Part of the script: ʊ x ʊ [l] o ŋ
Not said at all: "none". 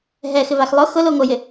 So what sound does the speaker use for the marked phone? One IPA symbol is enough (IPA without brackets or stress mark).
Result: l